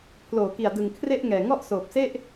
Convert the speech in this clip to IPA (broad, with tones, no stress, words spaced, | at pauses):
pʰloː˨˩ki˨˩a̯ dɯ˨˩ŋ kʰre˥˩ʔŋɛː˨˩ŋɔ˥˩ʔsoː˨˩p̚ se˥˩ʔ